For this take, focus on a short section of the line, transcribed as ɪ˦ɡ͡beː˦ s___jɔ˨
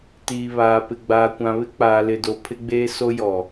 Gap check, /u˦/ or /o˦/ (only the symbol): o˦